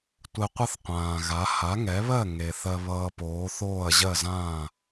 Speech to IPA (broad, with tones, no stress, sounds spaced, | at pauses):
tʷ ɛ˧ qʷ ʌ˥ θ qʷ ãː˩ ɣ a˩˥ h a˩˥ ŋ ɛ˩˥ β ɜ˥˩ ŋ e˩ θ ɜ˧ β ʌː˧ p oː˩˥ θ oː˥˩ ɐ̯ ʑ ɜ˥˩ z ãː˥˩